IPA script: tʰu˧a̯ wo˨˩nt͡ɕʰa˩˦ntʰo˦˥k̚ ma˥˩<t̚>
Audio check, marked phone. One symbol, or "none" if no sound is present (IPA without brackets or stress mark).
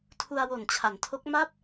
p̚